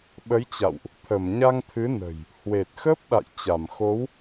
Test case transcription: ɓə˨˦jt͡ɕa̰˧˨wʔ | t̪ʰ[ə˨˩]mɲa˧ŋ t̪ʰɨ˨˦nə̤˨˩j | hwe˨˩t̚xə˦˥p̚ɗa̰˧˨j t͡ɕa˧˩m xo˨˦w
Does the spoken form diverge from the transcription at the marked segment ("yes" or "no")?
yes